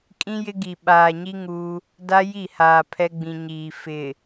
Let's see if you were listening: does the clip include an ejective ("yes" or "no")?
yes